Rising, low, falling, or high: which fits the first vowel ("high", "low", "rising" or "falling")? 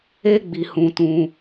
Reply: high